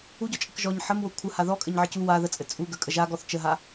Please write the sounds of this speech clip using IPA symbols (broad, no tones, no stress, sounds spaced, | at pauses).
u ɟ ɔ t͡ʃʼ ə k ʒ ɔ ɲ ħ ə m w o kʷʰ ə h a ð ɔ kʼ ɘ ɲ ʕ ɘ c u w a ð ə t͡sʼ ɘ t͡sʼ u ɡ ə kʼ ə ʒ a ɡ ɔ θ t͡ʃ ə ɦ a